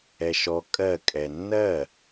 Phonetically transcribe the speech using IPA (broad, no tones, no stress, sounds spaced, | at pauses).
ɛ ʃ ɔ kʼ ɜ kʼ ɛ nː ɜ